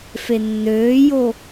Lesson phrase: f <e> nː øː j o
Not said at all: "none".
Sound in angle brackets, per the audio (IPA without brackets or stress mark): e